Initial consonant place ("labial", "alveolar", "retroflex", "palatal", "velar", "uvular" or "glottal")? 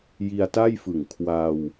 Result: palatal